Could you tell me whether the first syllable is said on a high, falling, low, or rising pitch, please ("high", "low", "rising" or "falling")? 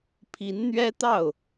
rising